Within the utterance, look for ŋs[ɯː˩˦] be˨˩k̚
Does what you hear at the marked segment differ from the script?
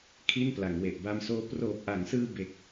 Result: yes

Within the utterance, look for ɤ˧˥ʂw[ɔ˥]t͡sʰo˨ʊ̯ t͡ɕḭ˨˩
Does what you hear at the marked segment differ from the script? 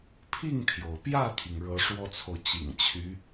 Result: no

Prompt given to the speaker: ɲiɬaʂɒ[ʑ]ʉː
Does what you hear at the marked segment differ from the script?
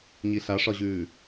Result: no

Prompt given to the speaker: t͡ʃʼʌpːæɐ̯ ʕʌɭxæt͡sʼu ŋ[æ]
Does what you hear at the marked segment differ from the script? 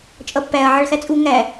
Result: no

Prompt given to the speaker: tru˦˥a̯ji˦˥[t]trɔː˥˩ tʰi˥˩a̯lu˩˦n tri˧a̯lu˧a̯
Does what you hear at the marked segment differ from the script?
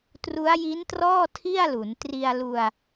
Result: yes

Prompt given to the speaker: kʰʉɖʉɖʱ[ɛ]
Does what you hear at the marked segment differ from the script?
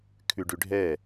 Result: no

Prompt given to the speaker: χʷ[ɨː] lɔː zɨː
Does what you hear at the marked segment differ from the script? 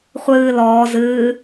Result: no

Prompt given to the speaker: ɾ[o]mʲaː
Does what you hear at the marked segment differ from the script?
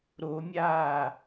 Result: no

